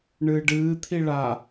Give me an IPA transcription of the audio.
ɳɨːɖɨː t̪ʰiɭa

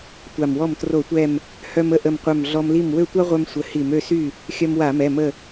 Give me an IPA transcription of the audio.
tʷa˧˩mwɔ˥˩m tro˧˩˧tʷɛ˧˩m | hœ˧mə˥˩ʔə˧˩mqʷœ˧˩m ɮɔ˧mli˥˩m wø˥˩tʷa˥ʁʷœ˧m sʷə˧˩hi˧˩˧m ø˥˩sy˥˩ | xʲœ˧mwa˧˩˧mɛ˩˧˩ mə˧˩

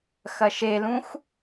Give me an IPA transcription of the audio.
xɐʃelũx

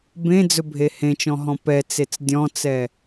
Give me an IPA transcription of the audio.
bẽd͡zɵbʱe hẽt͡ʃɔ̃ɦɔ̃ pɛt͡set͡s dʲɔ̃t͡sɛ

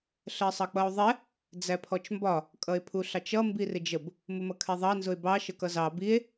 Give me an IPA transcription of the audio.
ɬɜsˤʌk͡pʌo̯ðˤɛ | d͡zæpʰɔt͡ʃmbɒ | kʼʌe̯pʰuɬɑt͡ʃʌ mbirɪd͡ʒəb | mʊmʌkʰɛðˤɑ nzʊe̯bɑ ʃəkʌzɑ bie̯

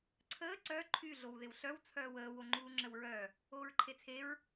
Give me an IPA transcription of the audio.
ǀʰəː ǀœ ǃʰy ɮowðɪwɬœw t͡sʰœːwəː woŋ͡ǃuːŋ͡ǁəwɹœ | oːɹǃʰet͡sʰeɹ

